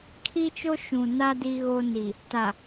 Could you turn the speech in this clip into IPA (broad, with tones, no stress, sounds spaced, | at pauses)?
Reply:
kʰ i˦ t͡ʃ o˦ ʃ ũ˨ n a˦ d i˦ ɣ o˦ n i˨ | t a˨